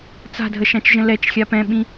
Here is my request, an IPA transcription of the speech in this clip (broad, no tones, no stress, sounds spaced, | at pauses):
t͡s a̤ dʱ ə ʃ ã t͡ʃ ʒ ə̃ l ɛ t͡ʃ xʲ a p ɛ̃ ɓ ĩ